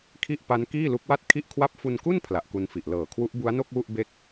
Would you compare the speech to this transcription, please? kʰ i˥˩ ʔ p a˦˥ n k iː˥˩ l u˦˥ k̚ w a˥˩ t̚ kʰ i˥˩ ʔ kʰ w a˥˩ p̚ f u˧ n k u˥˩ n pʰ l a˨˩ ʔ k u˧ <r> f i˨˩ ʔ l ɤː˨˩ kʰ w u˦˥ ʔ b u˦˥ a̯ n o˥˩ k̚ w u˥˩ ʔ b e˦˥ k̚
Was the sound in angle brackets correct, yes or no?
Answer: no